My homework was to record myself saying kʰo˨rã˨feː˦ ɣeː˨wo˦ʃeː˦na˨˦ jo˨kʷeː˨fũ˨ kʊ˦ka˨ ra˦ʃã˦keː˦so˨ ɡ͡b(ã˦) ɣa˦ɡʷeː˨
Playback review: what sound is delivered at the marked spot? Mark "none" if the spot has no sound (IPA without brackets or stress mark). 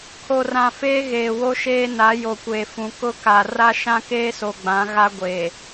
ã˨˦